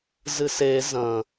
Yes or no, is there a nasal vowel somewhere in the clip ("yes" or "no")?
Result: yes